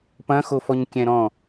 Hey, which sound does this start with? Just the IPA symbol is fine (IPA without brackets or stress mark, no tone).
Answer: p